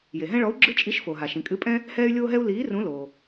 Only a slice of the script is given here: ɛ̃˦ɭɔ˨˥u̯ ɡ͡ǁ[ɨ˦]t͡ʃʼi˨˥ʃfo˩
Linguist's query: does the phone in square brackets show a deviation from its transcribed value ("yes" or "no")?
no